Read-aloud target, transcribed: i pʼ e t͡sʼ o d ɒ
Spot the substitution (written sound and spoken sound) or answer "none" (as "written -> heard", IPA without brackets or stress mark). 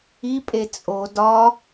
none